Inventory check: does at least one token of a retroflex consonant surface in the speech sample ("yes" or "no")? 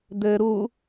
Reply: no